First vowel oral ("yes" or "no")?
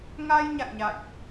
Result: yes